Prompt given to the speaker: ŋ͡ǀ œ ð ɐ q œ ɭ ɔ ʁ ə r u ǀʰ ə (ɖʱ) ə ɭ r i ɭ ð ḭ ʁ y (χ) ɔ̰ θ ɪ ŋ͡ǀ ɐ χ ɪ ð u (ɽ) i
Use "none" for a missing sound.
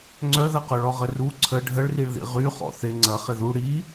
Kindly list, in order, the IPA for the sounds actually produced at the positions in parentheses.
ɖʱ, χ, ɽ

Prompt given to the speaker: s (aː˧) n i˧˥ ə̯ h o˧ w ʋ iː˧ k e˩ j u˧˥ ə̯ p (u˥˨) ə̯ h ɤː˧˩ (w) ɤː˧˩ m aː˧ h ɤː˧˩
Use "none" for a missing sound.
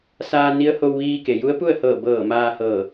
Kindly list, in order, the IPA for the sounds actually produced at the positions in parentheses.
aː˧, u˥˨, b

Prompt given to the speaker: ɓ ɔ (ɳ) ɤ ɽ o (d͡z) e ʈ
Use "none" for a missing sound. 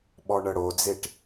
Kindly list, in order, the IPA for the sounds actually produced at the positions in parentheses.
ɳ, d͡z

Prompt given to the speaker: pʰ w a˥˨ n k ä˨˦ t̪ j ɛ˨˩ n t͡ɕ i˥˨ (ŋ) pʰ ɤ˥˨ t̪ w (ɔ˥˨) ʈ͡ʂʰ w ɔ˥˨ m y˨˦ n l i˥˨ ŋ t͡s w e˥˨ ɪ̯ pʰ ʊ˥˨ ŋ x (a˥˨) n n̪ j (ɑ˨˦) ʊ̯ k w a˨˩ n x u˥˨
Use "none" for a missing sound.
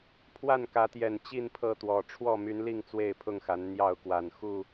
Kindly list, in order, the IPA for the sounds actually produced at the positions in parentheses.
n, ɔ˨˩, a˨˦, ɑ˥˨

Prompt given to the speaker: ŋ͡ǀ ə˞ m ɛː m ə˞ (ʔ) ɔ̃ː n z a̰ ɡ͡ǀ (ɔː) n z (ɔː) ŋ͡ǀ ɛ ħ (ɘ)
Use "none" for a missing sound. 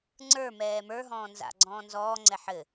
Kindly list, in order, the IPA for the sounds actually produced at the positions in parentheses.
ɦ, ɔ̃ː, ɔː, ɘ

